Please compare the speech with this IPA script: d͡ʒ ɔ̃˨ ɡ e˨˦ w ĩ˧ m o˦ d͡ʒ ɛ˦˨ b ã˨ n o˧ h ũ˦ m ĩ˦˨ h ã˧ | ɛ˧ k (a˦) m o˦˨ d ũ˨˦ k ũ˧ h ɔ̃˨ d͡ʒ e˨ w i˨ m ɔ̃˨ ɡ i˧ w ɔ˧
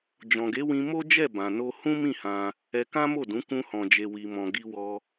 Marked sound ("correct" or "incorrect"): incorrect